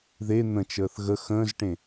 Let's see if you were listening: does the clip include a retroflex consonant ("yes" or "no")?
yes